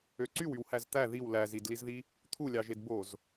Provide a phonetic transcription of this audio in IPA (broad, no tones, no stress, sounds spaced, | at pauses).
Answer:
ø ǀ y w y w h æ z t̪ æ ð i w l æ z i d l i z ð i | t̪ʰ u lʲ ɑ ʒ e d b o z